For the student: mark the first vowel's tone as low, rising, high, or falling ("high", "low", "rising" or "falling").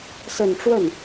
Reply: low